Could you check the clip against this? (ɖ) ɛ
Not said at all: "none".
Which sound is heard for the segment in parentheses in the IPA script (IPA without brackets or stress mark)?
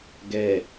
ɡ